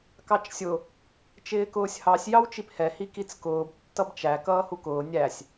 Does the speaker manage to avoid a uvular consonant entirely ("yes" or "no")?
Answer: yes